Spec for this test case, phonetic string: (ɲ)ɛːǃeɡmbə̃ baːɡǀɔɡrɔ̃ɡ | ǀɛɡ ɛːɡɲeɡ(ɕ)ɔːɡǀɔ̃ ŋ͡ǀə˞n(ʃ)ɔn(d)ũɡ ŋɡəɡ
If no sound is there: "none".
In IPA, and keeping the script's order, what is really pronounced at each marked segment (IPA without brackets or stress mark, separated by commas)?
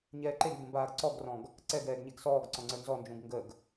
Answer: ɲ, s, z, d͡ʒ